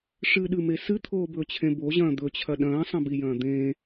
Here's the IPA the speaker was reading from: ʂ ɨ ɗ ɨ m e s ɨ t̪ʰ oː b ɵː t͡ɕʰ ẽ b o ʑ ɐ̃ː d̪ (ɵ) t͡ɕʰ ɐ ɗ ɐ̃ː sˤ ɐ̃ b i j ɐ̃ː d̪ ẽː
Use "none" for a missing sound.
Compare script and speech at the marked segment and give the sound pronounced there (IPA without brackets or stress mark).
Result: ɵ